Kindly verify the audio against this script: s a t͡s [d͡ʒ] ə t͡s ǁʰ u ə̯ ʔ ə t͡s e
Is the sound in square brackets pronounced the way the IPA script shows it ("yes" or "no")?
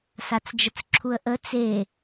yes